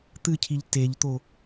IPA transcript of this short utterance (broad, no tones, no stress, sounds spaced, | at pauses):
t̪ ɨ cʰ i ʎ t e ʎ t̪ o